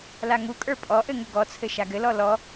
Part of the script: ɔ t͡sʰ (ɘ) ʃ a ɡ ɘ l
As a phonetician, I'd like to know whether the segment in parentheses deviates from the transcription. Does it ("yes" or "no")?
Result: no